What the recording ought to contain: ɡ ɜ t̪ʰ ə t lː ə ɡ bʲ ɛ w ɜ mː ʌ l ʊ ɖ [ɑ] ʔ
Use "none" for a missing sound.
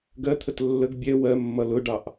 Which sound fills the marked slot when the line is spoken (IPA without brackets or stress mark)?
ɑ